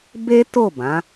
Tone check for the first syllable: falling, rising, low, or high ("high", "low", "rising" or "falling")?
high